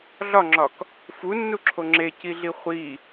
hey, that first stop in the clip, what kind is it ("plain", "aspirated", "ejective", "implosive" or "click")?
click